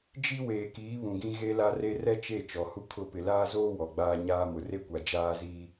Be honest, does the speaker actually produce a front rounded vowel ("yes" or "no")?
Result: no